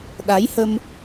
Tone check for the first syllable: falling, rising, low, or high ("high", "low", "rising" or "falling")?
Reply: rising